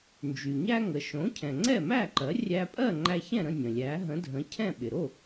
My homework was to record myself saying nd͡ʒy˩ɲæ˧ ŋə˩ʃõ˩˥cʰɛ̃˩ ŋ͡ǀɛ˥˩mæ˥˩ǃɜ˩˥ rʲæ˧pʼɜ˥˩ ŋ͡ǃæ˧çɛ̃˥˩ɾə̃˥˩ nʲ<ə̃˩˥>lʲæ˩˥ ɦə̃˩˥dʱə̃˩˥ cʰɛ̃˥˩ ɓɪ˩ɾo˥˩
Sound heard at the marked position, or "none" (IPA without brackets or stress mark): ə̃˩